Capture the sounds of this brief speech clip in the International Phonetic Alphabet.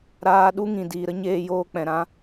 ɾ aː˧ ɗ u˦ ŋ ĩ˨ d iː˨ ɾ ə˦ ɲ eː˦ j oː˦ k͡p ɛ̃˨ ɾ ã˧

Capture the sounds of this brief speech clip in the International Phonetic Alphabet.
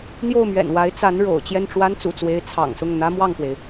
n̪ j o˥˩ ʊ̯ m ɥ ɛ̰˨˩ n w a˧˥ ɪ̯ t͡s a˧˥ n ɻ o̰˨˩ ʊ̯ t͡ɕ j ɛ˥˩ n ʈ͡ʂ w a˥ n t͡s ṵ˨˩ t͡s w e˧˥ ɪ̯ t͡sʰ ɑ̰˨˩ ŋ s ʊ˥˩ ŋ n̪ ä˥ m w ɑ˥˩ ŋ k w e˩ ɪ̯

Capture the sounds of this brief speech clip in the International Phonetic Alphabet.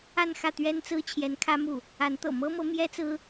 a˥˧ n x ä˥˩ t̪ ɥ ɛ˥ n t͡s ɹ̩˥ t͡ɕʰ j ɛ˧˥ n kʰ ä˥ m u˥˩ | a˧˥ n t̪ ɤ̰˨˩ m ɤ˥ m ɤ˧˥ m j ɛ˥ t͡s ɹ̩˥

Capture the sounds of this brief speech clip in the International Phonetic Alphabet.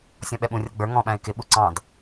sʲ ɔ̃ ɓ ɛ ɓ ũ rʲ ʌ ɡ͡b ə˞ ŋ ɔ̃ ɓ æ̃ ɪ̯ k ɪ ɓ u ǀ ɑ̃ d

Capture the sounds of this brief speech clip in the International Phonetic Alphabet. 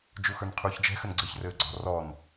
d͡ʒ u x ə˞ n qʰ uː ç d͡ʒ ɛ̤ x ɘ n ɡ͡ǀ ɘ ç r ɘː ɡ͡ǀ ɔ̤ r ɔ n

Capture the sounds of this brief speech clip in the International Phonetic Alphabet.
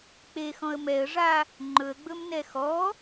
k͡p e x ɔ̃ ə̯ m ɛ ə̯ ʐ a | ŋ͡ǃ ɵ ə̯ ɡ͡b ɵ m n ɛ x ɔ

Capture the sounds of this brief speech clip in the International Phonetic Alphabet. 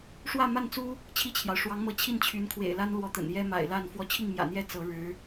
ʂ w ä˥˧ m a˥˩ n t͡s u˥ | t͡ɕʰ i˥˩ t͡ɕʰ j ɑ˩ ʊ̯ ʂ w ɑ˧˥ ŋ m ɤ˧˥ t͡ɕʰ i˥˩ n t͡ɕʰ y˧˥ n kʰ w ḛ˨˩ ɪ̯ l a˥ n l w ɔ˧˥ t̪ ə̰˨˩ n j ɛ˥ m a̰˨˩ ɪ̯ l a˥˩ n f w ɔ˧˥ t͡ɕʰ i˥˩ ŋ m j ä̰˨˩ n̪ j ɛ˥˩ t͡s ɤ˧˥ ɻ ɻ̩˧˥

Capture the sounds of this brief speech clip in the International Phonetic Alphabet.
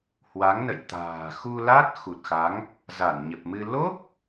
h w a˨˦ ŋ n ə̰˧˨ j t̪ a̤ː˨˩ x u˧ l a˦˥ t̚ x u˨˩ t̚ x a˨˦ ŋ | z a˧˩ n ɲ ə˨˩ p̚ m ɨ˧ l o˦˥ p̚

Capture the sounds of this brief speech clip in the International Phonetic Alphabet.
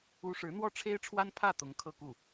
u˥ ʂ ɻ̩˧˥ n̪ w ɔ˥˩ ʈ͡ʂʰ e˥ ɪ̯ ʈ͡ʂʰ w a˥ n pʰ ä˥˩ t̪ ʊ˧˥ ŋ kʰ ɤ˥˧ k u˥˩

